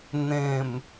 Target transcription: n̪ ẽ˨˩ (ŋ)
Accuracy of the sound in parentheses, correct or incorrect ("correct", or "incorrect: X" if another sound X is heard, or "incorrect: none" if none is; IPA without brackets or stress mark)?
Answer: incorrect: m